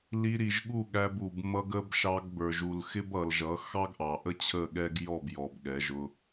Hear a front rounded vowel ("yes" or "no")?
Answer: no